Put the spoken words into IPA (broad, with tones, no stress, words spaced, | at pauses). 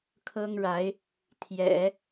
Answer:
kʰɤ˥ŋɻa˧˥ɪ̯ | t̪ʰjɛ̰˨˩˦